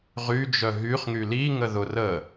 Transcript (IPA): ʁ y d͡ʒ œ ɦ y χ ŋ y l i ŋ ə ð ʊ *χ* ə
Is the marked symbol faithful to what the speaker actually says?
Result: no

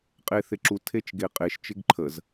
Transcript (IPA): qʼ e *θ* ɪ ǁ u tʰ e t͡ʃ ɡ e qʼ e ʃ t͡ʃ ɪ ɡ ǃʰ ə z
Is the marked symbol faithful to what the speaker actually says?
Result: yes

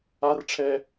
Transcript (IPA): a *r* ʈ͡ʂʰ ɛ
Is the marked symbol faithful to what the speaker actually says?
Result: yes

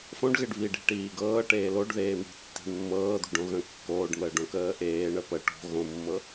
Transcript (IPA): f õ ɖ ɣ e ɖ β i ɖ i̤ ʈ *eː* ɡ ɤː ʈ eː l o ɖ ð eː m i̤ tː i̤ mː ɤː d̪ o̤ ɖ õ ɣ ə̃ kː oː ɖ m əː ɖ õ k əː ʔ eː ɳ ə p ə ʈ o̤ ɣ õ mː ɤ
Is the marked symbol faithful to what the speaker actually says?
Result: no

